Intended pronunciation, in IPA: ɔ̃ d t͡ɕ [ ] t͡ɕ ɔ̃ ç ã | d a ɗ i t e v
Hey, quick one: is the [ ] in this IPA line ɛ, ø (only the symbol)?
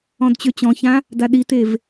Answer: ø